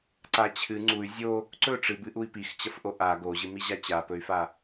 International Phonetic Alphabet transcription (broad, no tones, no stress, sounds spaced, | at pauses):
ǀ a t͡ɕʰ ɨ ŋ͡ǀ u y̯ zʲ o | ǀ ɵ ʈ͡ʂ ɨ b ɨ ʔ u i̯ p i x t͡ɕ ɐ f ʔ o ʔ a ɡ o ʑ ɨ m i ʑ a t͡ɕ a p ɵ y̯ f a